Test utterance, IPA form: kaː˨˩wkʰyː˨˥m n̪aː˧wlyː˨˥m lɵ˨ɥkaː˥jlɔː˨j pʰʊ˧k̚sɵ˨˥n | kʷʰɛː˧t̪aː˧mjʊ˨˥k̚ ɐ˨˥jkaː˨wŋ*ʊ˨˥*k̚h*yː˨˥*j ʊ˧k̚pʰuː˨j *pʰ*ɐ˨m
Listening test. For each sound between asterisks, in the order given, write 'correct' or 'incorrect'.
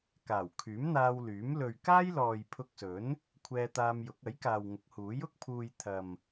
correct, incorrect, incorrect

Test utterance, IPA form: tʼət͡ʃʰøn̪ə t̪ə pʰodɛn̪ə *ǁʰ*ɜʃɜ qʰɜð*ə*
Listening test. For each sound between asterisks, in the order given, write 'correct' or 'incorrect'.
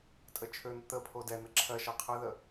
correct, correct

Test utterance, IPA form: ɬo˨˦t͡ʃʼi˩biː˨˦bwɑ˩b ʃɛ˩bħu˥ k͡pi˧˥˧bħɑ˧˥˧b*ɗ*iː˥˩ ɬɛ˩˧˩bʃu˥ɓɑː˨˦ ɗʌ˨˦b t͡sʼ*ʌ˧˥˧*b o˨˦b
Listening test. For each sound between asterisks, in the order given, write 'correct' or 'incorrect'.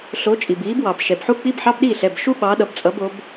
correct, incorrect

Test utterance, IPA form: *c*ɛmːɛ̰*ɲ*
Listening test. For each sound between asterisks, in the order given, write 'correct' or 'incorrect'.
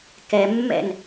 incorrect, incorrect

